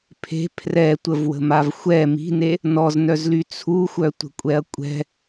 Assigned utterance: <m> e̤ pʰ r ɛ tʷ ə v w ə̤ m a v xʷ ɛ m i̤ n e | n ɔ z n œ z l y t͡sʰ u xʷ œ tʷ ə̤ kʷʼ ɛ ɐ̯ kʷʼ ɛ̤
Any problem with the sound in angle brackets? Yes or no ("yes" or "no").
yes